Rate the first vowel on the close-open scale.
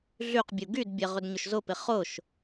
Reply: close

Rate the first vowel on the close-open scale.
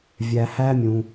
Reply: open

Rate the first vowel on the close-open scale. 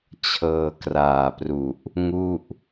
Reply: mid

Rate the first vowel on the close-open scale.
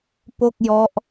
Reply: mid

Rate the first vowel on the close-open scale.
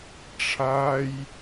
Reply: open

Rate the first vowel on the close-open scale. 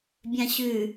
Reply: open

